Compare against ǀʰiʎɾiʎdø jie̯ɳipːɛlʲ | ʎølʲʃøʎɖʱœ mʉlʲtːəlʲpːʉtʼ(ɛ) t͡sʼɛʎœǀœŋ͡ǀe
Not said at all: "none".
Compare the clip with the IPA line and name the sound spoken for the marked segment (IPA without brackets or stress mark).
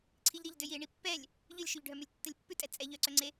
ɛ